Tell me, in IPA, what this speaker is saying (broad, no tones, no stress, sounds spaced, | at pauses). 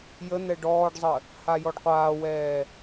j ə n̪ ɛ ɖ ɔː ɖ zˤ ə | h a j ɔ ɖ qʷ aː w ɛː